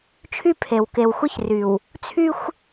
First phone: t͡ʃʰ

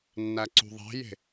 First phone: nː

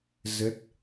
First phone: z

